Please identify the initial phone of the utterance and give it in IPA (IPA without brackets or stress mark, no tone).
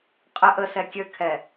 qʼ